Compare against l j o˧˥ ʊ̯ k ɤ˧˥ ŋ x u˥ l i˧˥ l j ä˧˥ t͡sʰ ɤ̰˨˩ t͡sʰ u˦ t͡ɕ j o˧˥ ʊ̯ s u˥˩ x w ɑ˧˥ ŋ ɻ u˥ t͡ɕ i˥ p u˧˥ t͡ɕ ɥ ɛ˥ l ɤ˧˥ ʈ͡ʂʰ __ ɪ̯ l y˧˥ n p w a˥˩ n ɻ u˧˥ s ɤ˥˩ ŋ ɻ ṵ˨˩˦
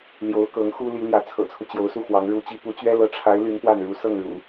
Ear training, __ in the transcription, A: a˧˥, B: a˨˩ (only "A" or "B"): A